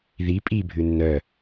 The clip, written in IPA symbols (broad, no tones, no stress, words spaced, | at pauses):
ði pʼibʱʉ nːœ